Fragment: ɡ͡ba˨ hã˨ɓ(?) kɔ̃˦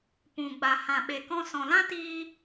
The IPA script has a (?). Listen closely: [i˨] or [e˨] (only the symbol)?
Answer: e˨